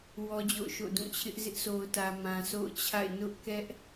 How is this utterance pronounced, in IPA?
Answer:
w ɔ˦ d͡ʑ o̰˦˨ ʊ̯ ʃ o̰˦˨ d ũ˦˨ t͡ɕʰ ɪ˦ ʔ z ɪ˦ ʔ s o˨ ʊ̯ t ä˨ m ã˨ s o̰˦˨ ʊ̯ t͡ɕʰ a̰˦˨ ɪ̯ n ʊ˦ ʔ k ɛ˦ ʔ

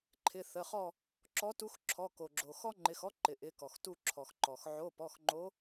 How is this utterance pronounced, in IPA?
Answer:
ǃʰ ɪ˩˧˩ θ ə˩˧˩ χ ɔ˦˨ | ǁ ɔ˨˦ t u˨˦ x ǁʰ ɔ˩˧˩ k o˩ ɡ͡ǁ o˩ x ɔ˦ ŋ͡ǃ ɪ˩˧˩ x ɔ˦ ǃ ɪ˩ ʔ ɪ˨˦ k ɔ˩ x t u˦˨ ǁʰ ɔ˩ x ǃ ɔ˩ x ʕ o˩˧˩ p ɔ˩˧˩ x ŋ͡ǃ o˨˦

